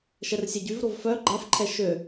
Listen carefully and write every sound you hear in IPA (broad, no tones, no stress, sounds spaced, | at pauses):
ʃ ɛ r sʲ ɛ ɟ y v ɾ o v f œ ɡ͡ǃ a f ǃʰ ɛ ʃ ø